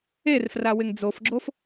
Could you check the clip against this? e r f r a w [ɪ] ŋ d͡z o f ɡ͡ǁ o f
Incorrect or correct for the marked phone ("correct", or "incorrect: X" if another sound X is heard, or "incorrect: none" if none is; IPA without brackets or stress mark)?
correct